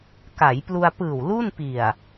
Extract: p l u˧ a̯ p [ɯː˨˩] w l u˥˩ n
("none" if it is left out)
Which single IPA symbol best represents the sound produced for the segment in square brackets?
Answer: ɯː˨˩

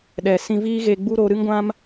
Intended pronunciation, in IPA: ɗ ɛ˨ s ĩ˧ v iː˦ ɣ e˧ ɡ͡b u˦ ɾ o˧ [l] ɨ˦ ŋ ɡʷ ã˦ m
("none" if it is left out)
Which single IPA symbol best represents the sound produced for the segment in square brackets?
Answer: ɾ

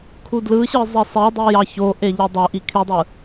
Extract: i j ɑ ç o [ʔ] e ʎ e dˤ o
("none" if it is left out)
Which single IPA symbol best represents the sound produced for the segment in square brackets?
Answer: ʔ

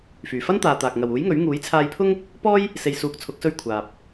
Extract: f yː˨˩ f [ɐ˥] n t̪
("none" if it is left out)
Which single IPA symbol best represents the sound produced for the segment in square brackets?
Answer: ɐ˥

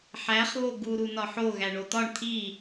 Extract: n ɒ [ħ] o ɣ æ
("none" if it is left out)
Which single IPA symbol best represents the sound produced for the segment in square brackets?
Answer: ħ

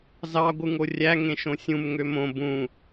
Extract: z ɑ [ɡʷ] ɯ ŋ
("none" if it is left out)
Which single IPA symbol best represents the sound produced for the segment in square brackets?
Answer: ɡʷ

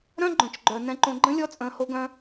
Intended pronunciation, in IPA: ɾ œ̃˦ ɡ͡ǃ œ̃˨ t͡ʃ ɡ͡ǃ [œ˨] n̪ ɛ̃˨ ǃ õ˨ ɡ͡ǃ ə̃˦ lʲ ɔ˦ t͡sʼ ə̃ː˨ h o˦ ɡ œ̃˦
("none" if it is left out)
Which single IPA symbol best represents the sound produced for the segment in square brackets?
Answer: œ˨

